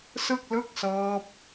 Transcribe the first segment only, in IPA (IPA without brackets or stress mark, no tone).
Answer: s